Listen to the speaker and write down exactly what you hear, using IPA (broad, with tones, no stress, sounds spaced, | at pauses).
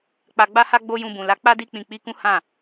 k͡p a˧ ɡ͡b a˦ h a˦ ɡ͡b o˦ j ũ˧ b ũ˨ l a˨˦ k͡p a˦ d i˦ k͡p ĩ˧ k͡p i˦ k ũ˦ h ã˦˨